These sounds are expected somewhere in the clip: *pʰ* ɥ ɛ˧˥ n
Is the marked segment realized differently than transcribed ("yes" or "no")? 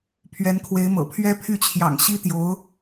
no